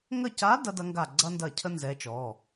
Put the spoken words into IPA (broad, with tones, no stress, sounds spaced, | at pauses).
ŋ ə˦˨ c a˧˥ d ɐ˧˥ d ɐ˧˥ ŋ ɡ a˦˨ ɡ͡ǀ ɐ˥ n d ɐ˦˨ cʰ ə˥ n z ɛ˧˥ t͡ʃ ɔ˩˧˩